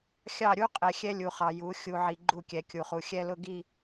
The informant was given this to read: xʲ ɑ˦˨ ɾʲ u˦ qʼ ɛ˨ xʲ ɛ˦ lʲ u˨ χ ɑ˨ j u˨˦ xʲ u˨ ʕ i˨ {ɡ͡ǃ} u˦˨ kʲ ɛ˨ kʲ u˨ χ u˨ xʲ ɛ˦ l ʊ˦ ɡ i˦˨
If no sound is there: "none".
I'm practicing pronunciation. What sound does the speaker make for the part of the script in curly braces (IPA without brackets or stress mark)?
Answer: ɡ͡ǃ